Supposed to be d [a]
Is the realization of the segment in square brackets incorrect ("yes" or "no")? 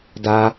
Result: no